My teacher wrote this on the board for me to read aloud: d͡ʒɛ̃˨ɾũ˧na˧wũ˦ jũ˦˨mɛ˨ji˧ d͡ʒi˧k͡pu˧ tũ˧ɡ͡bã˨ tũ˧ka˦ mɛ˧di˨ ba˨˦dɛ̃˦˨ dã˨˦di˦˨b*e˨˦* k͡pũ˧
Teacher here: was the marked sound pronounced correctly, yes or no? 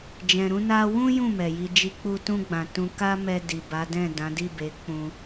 yes